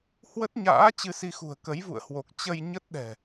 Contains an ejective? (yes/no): no